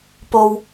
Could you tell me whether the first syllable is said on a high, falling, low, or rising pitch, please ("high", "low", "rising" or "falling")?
low